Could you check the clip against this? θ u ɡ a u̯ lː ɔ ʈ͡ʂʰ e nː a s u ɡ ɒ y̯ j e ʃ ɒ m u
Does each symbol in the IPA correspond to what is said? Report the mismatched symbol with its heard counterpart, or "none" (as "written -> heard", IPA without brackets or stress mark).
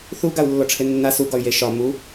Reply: none